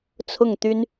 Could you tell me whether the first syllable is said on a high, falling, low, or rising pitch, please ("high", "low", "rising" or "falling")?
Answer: falling